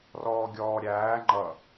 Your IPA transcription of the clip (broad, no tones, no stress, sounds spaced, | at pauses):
r ɔː ɡʲ ɔː ɾʲ æː ŋ͡ǃ ʌ